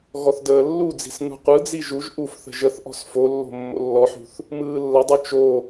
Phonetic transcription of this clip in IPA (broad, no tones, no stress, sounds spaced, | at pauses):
ɣ ɔ θ d əː lː u d͡z i̤ s n ṳ qʷ ɯ d͡z i ʒ u ʒ ʔ u f θ ə̤ ʒ ə θ ʔ ɔ̤ s f o lː o̤ mː o̰ lː ɔ ħ ṳ θ | m ɯː lː ə dˤ u t͡ʃ o